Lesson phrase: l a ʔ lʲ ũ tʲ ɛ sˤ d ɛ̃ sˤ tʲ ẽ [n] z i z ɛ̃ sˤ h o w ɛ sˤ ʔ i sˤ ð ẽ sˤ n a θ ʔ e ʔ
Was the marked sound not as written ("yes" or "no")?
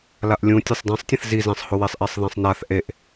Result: yes